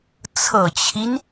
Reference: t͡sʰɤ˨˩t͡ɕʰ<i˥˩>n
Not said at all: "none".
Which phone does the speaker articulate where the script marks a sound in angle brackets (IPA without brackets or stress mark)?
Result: i˦